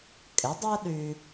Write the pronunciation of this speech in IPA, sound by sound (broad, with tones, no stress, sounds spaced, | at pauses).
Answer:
kʼ ɪ˩˥ dˤ œ˥ ɗ y˧